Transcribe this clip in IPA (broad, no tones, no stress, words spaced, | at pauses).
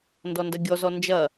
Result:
ndɔndɐɡʲɔzɔ nd͡ʒɐ